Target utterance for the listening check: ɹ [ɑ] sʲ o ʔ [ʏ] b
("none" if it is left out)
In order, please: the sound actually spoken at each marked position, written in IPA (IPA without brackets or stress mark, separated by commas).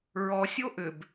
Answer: ɔ, ʏ